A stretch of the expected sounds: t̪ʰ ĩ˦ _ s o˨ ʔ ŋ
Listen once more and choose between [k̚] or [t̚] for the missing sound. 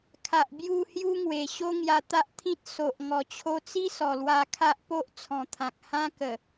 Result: t̚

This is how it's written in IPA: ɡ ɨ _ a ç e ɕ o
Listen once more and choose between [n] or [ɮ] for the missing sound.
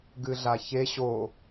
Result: ɮ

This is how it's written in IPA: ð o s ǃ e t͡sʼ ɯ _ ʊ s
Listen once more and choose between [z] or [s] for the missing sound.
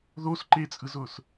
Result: z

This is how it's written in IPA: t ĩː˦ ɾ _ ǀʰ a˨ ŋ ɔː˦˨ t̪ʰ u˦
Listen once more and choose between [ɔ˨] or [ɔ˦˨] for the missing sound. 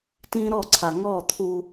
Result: ɔ˦˨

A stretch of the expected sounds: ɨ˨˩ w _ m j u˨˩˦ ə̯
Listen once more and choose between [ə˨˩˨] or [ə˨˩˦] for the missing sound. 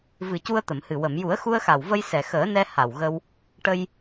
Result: ə˨˩˨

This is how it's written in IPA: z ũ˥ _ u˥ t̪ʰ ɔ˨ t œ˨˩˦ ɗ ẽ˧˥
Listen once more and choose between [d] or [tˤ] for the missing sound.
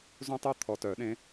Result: tˤ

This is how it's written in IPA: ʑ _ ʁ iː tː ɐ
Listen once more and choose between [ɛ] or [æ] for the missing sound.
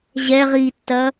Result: ɛ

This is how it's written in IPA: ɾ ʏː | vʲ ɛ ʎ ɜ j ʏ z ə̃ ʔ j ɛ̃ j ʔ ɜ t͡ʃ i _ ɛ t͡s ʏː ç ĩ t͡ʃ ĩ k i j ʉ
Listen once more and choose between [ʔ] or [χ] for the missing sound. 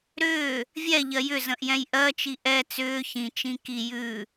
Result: ʔ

